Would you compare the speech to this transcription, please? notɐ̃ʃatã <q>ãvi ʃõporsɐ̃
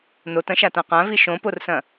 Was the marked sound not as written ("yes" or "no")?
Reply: no